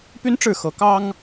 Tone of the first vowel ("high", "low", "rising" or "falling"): high